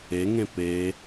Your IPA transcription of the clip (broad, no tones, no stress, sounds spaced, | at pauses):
e ŋ ẽ p e